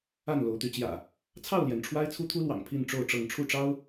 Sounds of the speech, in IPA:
a˥˨nlo˨˦ʊ̯t̪y˨˦t͡ɕjä̰˨˩ | t͡sʰɑ˥˨ʊ̯ljɛ˩n ʈ͡ʂʰwa˦ɪ̯t͡sʰu˦t̪ʰu˦lwɑ̰˨˩ŋ pʰi˥˨n ʈ͡ʂo˥˨ʊ̯ʈ͡ʂɤ˥˨ŋ ʈ͡ʂʰu˥˨ʈ͡ʂɑ˦ʊ̯

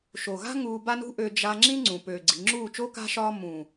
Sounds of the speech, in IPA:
ʃo˨ɣa̤˦ ŋuː˧ba˦nṳ˦ʔø˧ d͡ʒa˧ ŋ͡ǁĩ˦ŋ͡ǀũ˨ pøː˨ɡ͡ǀi̤˨ŋ͡ǁuː˦˨ t͡ʃo˦ka̤˦ ʃɒː˧ mũ˨

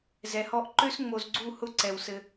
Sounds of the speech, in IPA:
zɛ˨hɔ˦ʔ ǃø˦sŋ͡mo˨zɡ͡ǀu˦˨hʊ˦ ǀɛ˨wsɘ˦

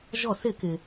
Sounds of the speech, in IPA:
ʒɔ˧˩˧sɪ˧˩˧kɪ˩

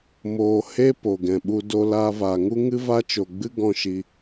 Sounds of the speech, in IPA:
moː˧ he˦ po˨ɡɛ̃˨ɓu˧ do˧laː˧vaː˨ŋu˦ ŋɨ˦va˦t͡ʃo˨ɡ͡bɨ˦ ɡɔ̃˦ʃi˧

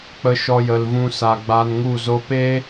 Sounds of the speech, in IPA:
k͡pə˧ ʃɔ˧jə˨lvũ˧sa˨ ɡ͡ba˧nŋu˦˨zo˦ peː˦

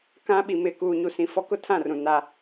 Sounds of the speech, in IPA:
kã˦ ɓi˨ mɪ˨ kuː˨ɲu˨sĩ˨fɔ˦ kʊ˦tʰã˦˨rũ˨ na˦

